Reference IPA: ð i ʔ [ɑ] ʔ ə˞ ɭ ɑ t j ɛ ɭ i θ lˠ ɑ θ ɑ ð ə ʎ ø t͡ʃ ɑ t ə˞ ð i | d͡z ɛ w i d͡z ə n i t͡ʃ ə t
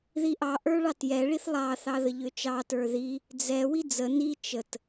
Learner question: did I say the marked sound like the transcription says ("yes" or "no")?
yes